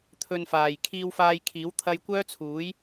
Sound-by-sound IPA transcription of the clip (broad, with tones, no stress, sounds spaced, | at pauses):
t̪ʰ ɵ˧ n f aː˨ j kʰ iː˧ w f aː˧ j kʰ iː˨˥ w t̪ʰ ɐ˥ j kʷ œː˥ t͡sʰ uː˨˥ j